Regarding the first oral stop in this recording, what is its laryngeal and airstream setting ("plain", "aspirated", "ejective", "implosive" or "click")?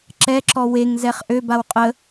click